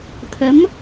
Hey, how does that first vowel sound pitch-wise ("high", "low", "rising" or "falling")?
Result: rising